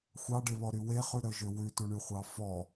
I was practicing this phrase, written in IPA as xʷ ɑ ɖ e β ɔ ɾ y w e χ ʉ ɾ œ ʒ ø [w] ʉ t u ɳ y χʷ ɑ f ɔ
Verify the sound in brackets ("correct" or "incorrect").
correct